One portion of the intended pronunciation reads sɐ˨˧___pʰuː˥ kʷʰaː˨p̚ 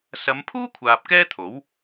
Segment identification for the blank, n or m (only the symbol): m